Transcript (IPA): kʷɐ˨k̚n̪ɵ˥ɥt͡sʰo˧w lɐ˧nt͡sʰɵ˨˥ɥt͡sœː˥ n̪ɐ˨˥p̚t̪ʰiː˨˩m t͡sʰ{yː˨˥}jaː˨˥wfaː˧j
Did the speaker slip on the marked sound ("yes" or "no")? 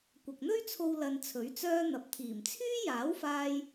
yes